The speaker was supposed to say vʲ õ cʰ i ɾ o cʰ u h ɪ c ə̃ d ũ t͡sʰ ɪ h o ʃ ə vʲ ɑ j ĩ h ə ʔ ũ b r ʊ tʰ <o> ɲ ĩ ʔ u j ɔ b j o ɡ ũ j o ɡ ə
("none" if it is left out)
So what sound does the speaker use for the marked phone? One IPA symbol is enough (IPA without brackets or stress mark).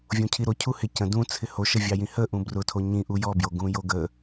o